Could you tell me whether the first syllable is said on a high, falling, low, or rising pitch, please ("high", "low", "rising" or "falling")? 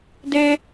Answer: high